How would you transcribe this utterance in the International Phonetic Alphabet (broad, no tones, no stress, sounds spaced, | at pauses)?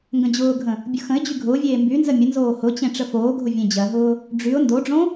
ŋ ɡ ə̃ d͡ʑ ʊː ɡʱ ə̃ | bʲ ʊ x ə̃ ɪ̯ d͡ʑ y ɡʱ ʊː vʲ eː m b y n z ə mʲ ə n z oː h ʊ t͡ɕ ẽ ʈ͡ʂ ə f oː ɡʱ ʊ vʲ ẽ d͡ʑ ɜ ɦ ʊː | ɖ͡ʐ y ʊ̯ n d o ɖ͡ʐ õ